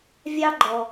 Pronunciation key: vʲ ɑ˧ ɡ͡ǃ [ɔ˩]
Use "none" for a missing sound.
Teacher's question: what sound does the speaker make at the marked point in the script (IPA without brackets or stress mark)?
ɔ˩